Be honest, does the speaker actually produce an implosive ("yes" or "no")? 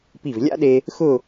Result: yes